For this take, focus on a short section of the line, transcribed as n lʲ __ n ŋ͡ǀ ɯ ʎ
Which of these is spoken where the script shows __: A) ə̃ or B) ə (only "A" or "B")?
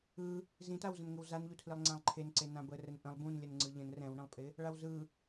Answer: B